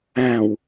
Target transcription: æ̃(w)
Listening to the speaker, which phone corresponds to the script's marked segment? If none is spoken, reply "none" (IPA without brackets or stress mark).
w